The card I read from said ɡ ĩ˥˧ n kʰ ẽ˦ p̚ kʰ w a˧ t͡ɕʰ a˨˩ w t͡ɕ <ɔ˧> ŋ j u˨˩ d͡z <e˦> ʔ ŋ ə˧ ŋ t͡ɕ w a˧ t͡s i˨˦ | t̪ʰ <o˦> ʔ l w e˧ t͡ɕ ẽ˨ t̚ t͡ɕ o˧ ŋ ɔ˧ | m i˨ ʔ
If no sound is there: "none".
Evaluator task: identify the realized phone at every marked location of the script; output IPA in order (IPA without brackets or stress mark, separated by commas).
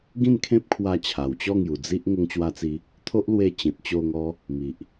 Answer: ɔ˥˧, i˦, o˦